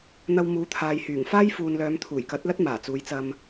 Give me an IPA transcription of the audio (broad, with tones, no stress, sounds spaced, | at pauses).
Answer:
n̪ ɐ˧ w m uː˨˥ t̪ʰ aː˨ j h yː˨˩ ŋ f aː˥ j f uː˨ n l œː˨˧ m t̪ʰ uː˨˩ j k ɐ˨˥ t̚ l ɐ˥ t̚ m aː˨˩ t͡s uː˨˧ j t͡s ɐ˧ m